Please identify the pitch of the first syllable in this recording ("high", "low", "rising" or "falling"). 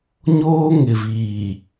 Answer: high